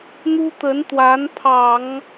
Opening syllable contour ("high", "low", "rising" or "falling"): high